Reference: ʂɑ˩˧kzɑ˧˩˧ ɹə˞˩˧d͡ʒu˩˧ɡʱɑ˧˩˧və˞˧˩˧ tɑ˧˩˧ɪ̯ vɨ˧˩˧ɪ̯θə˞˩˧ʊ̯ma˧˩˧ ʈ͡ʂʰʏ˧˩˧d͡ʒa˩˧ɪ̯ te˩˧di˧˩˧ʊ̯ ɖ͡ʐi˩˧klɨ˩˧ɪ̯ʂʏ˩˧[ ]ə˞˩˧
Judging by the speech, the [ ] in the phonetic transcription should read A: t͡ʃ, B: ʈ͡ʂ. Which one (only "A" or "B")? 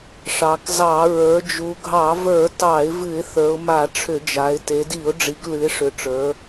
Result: B